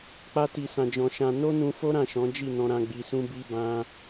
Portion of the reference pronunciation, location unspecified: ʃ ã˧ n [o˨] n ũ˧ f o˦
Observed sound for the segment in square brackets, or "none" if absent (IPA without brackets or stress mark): o˦